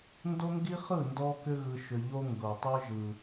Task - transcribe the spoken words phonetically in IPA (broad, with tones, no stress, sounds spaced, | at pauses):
n d o˦ ŋ ɡ i˦ χ ɯ˦˨ n d ɔ˦ k ʏ˦ ɣ ɯ˦ ʃ ʏ˦ ʎ o˦ ŋ ɡ ɤ˨ tˤ ɯ˦ ʒ ɯ˦